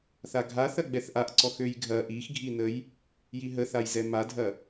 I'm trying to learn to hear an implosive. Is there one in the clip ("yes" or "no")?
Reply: no